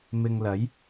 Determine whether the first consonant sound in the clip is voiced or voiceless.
voiced